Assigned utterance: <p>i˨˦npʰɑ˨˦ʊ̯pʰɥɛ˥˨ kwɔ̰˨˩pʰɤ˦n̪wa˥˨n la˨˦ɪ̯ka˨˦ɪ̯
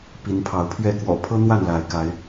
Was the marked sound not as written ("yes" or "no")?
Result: no